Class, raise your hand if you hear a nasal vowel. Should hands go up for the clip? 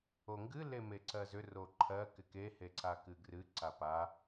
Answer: no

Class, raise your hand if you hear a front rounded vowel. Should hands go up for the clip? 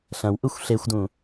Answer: no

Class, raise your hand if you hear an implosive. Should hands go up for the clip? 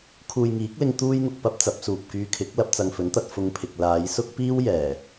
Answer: no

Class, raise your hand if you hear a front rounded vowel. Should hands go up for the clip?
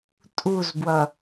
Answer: no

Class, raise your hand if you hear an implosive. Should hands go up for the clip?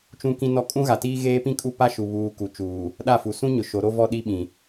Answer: yes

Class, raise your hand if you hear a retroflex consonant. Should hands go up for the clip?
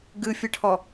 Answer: yes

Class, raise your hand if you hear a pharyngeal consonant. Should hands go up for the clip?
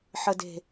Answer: yes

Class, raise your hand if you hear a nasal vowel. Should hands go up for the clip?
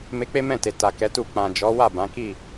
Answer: yes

